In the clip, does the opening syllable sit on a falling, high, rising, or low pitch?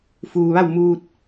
low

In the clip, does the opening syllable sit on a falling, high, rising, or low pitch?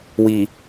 low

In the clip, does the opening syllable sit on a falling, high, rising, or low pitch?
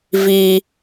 high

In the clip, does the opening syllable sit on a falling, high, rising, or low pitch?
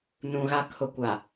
low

